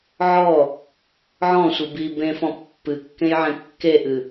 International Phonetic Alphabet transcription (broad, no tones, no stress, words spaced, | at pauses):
ʕɔ | ʕɔ̃sʷɨ bi bẽfɔ̃ pːɨkːẽjʕẽ kːeʔɨ